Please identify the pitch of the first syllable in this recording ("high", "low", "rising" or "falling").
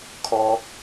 high